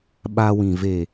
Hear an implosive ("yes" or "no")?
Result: yes